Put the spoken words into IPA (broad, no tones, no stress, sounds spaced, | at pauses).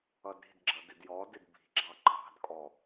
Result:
ʌ d ɾ i̤ d ɡ͡ǁ ʌ d ɪ d j ɔ d ɪ d b i̤ ɡ͡ǁ ɑ ǃʰ ɑ̤ d kʼ ɔ